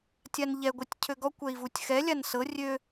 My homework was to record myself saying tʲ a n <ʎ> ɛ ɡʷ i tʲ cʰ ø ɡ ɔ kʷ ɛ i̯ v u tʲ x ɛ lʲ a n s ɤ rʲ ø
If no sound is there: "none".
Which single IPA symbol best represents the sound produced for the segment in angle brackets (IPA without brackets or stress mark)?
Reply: ʎ